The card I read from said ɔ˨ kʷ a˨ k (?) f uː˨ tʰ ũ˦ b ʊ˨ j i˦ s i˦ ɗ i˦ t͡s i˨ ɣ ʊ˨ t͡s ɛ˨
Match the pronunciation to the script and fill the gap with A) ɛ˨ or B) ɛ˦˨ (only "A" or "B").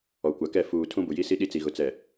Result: B